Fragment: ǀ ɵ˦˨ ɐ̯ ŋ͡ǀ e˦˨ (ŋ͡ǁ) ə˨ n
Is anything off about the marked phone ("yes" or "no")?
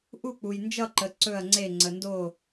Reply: yes